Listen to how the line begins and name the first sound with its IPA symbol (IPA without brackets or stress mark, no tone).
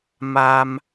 m